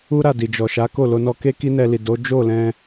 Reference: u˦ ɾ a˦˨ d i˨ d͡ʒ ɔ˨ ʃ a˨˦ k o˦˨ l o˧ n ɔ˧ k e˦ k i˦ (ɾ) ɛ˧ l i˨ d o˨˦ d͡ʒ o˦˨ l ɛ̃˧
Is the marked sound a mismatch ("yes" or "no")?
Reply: yes